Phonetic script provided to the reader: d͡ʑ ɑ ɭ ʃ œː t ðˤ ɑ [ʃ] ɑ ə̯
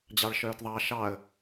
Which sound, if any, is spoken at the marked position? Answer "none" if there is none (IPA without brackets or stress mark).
ʃ